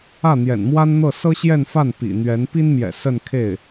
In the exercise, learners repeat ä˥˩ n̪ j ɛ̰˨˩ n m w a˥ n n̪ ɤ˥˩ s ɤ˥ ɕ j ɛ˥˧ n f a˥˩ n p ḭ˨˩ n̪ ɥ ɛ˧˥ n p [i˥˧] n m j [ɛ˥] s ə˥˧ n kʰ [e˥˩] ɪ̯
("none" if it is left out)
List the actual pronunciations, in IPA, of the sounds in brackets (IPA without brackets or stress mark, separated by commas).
i˥, ɛ̰˨˩, e˥˩